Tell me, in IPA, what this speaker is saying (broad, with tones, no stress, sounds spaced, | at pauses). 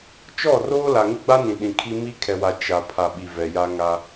t͡ʃ ɔ˦˨ r oː˦ l a˨ ŋ ɪ˦ ɡ͡b a˦ n ĩ˨ ɗ ĩ˨ kʰ i˦ m i˦ kʰ ɛ˨ w a˨ t͡ʃ a˨ pʰ a˨ ɓ i˨ v ɛ˨ j a˦ ŋ a˦